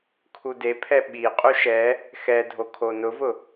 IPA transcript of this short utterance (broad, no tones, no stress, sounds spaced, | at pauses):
kʰ u d e pʰ ɛ ɓ i qʼ u ʃ ɛ | x ɛ dʱ o kʰ o n ʊ v ʊ